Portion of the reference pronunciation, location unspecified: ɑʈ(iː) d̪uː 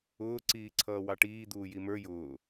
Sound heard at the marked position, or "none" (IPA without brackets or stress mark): iː